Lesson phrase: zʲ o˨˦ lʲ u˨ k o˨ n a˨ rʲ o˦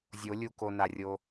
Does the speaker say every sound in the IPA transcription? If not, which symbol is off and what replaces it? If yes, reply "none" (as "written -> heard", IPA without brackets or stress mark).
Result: none